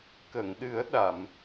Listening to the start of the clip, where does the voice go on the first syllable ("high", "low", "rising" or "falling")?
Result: low